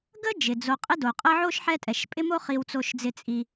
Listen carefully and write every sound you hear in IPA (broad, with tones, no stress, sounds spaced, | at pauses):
ɡ ə˥ d͡ʒ ɪ˩ d͡z o˨ qʼ ɪ˥ d o˩ qʼ ə˦ ʕ o˥ ʃ ħ ɛ˦ tʼ ɛ˩ ʃ pʼ ɪ˥ m o˥ χ i˨ w t͡s o˨ ʃ d͡z ɪ˨ t͡sʼ i˨